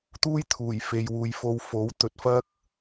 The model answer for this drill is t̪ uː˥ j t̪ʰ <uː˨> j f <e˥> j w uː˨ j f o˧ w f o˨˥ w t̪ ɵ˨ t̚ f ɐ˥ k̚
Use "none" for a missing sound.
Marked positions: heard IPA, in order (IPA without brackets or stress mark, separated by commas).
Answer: uː˨˩, e˨